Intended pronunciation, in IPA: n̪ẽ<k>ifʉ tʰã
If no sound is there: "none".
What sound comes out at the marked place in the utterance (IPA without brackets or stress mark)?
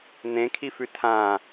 kʰ